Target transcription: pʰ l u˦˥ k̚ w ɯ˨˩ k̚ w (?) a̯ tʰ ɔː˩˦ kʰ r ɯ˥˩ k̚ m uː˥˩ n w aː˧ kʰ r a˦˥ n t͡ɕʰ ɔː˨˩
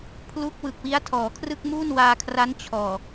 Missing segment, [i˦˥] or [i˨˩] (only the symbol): i˦˥